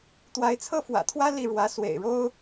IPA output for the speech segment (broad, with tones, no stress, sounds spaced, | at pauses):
t̪ w a˧˥ ɪ̯ t͡sʰ ɤ˥ f w ä̰˨˩ t̪ʰ w ä˥ l i˥˩ ɻ w ä˧˥ s w ḛ˨˩ ɪ̯ ɻ o˥ ʊ̯